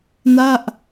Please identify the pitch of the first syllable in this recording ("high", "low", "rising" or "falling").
falling